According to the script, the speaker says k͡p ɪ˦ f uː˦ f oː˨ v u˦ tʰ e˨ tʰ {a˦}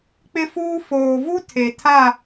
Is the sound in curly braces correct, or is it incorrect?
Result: incorrect: a˦˨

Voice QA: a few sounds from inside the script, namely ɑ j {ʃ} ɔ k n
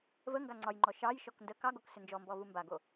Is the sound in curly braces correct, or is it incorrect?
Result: correct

